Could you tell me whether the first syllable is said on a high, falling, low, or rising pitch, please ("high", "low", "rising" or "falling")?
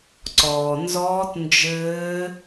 low